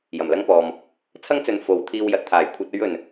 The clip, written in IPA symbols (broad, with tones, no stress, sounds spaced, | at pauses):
j ɐ˨˩ m l ɐ˥ ŋ p ɔː˨ m | t͡sʰ ɐ˥ ŋ t͡s ɵ˨˧ n f o˨˧ w t̪ʰ iː˧ w j ɐ˨ t̚ t̪ʰ aː˨˩ j kʷʰ ɐ˧ t̚ ɵ˧ ɥ ɵ˨˩ n